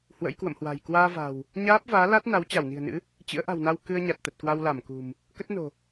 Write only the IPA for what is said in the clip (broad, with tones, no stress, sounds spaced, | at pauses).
h w ə̰˧˥ j k w ə̰˧˨ m h w a̤˨˩ j k w aː˧ v a̤˨˩ w | ɲ aː˦˥ p̚ v aː˨˦ l a˦˥ t̚ n a˨˦ w t͡ɕ a˧˩ w n i̤˨˩ ə̯ n ɨ̰˧˥ | t͡ɕ ɨ̰˧˥ ə̯ ʔ a̤˨˩ w n a˧ w k ɨ˧ ə̯ ɲ a˨˩ t̚ t̪ ə˨˩ t̚ k w a˧ w l a˧˩ m k ṳ˨˩ m | k ə˦˥ t̚ n o̤˨˩